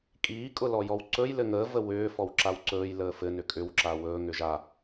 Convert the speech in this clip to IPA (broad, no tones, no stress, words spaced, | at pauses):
kʼiːkʼʊlɔjɔw ǀɵj lɘŋəː vəwʏː fɔwǁawǀɵːj ləːfɘ nʏkʼʏw ǁawɵː ŋʏʒa